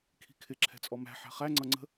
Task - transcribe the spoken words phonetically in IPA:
kʰ i̤ kʰ ɪ ǁʰ ɛ̤ t͡sʼ ɔ m æ̤ ħ æ̤ χ æ ŋ͡ǀ ʌ ŋ͡ǀ ə̤

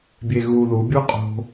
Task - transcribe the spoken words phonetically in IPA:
bʲ e ɣ u ð u bʲ u qʼ o̤

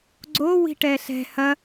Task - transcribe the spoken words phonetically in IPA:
ɡ͡ǀ o w i̤ ʈ ɛ ɬ ɛ̤ h ɐ

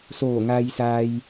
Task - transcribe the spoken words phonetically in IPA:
s oː˧˩ ŋ a˧ j s a˧ j

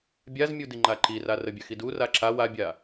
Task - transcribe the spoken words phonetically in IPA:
bʲ a z mʲ u d i ŋ͡ǃ a ǃ i r a r ə bʲ œ x i d u r a ǁ a w a bʲ a

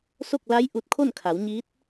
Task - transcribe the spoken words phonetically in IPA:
s o˥˨ k̚ l a˧˥ j ʔ u˧ t̚ kʰ o˥˨ n kʰ a˩˧ w ɲ iː˧˥ t̚

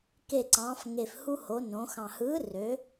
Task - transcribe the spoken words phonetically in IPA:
k e˨˩ ǀ ɑ̃ː˩˧ f ŋ e˨˩ f h u˧ h o˩˧ n õ˩˧ x ɑ̃˨˩ h ɯː˨˥ r ø˨˥

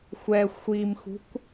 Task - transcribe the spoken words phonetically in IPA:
xʷ ɛ xʷ i m x ṳ kʷ

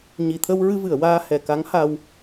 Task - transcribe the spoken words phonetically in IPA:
ɲ i˨˩˨ t̪ʰ ə˧ w ɹ ɨ˧ v ɨ˨˩˨ ə̯ w aː˧ h ɛ˨˩˨ k a˧˥ ŋ h a˧ w

